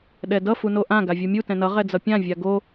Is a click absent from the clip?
yes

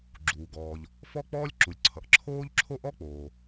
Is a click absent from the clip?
no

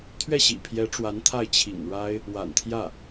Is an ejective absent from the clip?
yes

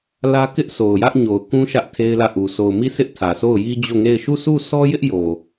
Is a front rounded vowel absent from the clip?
yes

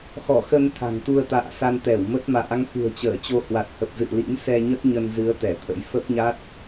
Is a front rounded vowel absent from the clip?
yes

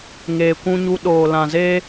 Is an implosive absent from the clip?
no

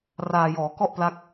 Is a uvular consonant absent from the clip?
yes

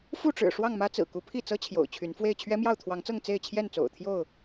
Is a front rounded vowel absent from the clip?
no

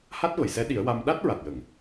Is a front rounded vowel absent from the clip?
yes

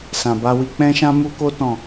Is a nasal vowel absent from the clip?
no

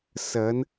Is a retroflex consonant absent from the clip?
yes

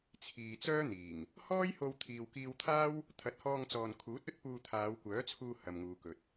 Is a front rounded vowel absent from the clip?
no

